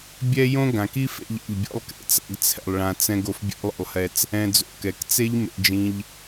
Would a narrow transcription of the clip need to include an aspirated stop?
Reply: yes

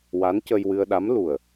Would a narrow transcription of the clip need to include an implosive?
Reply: yes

